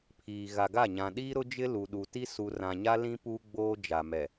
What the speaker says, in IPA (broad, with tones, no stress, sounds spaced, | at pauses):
pʰ iː˨ ɣ a˨ ɡ a˦˨ ɲ ã˨ ɗ iː˦ ɾ ʊ˦ d͡ʒ ɪ˦ l u˨ ɗ u˨ t i˦ s u˨ r ã˨ ɲ a˦ l ĩ˦ p uː˦ ɡ͡b oː˦ d͡ʒ a˨ m ɛ˨